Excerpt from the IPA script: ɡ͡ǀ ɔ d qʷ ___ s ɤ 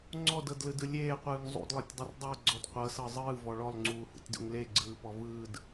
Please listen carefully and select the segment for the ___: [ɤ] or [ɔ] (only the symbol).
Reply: ɤ